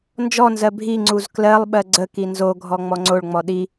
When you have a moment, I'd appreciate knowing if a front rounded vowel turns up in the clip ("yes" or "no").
no